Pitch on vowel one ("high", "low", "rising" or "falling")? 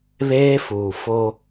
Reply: high